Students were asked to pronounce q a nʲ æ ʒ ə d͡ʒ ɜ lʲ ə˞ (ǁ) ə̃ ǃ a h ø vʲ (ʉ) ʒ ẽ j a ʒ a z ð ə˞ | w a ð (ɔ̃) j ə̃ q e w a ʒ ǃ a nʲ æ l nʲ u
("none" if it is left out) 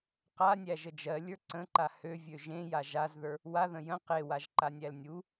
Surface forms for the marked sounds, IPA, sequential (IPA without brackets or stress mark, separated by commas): ǀ, ø, ə̃